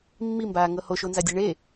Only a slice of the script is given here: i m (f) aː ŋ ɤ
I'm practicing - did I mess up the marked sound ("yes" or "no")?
yes